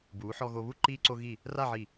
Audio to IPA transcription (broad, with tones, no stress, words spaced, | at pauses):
buː˩˧ħɔ˧ɣo˧βu˥ ǃiː˧ǀo˧ɣi˧˩ | ra˥˧ʕi˧˩